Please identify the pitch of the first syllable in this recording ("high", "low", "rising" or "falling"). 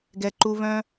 low